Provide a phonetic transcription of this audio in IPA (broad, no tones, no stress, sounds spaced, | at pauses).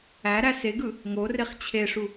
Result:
æ ɾ æ s e ɡ ɯ | ŋ o r e χ t͡ɕʰ e ʂ u